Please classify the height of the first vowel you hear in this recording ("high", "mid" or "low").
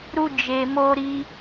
high